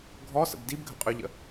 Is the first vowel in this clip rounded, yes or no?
yes